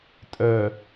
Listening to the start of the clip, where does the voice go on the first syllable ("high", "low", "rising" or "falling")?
low